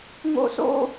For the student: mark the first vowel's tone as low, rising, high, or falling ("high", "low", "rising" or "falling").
high